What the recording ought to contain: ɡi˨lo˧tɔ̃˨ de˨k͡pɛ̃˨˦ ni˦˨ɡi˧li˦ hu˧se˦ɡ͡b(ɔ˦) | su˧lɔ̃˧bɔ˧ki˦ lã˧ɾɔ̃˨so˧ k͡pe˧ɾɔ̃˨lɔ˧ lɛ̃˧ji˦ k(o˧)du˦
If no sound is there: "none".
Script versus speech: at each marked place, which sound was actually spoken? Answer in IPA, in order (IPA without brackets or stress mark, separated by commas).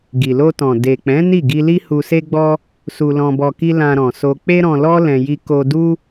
ɔ˦, o˧